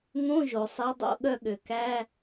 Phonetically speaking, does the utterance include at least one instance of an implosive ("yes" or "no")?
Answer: yes